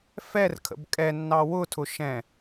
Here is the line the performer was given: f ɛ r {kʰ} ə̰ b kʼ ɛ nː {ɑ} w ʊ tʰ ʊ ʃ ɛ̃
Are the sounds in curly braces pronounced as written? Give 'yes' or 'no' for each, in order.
yes, yes

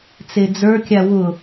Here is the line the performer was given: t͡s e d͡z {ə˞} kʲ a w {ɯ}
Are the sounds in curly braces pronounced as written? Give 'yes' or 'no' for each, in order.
yes, no

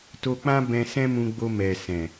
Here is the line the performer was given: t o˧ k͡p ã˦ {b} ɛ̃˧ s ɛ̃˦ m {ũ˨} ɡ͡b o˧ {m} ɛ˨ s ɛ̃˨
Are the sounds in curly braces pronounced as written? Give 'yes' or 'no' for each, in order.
yes, no, yes

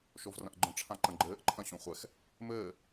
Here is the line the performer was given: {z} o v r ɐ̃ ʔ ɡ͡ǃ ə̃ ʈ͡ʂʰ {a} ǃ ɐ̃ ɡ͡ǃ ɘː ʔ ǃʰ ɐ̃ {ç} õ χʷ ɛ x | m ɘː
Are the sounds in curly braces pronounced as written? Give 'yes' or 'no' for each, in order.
no, no, no

